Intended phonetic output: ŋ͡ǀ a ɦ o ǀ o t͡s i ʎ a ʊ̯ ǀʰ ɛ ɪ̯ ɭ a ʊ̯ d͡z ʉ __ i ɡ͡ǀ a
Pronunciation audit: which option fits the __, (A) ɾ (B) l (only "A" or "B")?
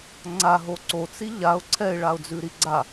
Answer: A